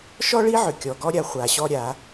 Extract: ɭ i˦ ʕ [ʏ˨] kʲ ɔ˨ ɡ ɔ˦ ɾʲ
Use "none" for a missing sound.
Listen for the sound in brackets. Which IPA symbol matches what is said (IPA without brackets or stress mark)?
ʏ˨